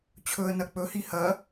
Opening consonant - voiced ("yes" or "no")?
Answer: no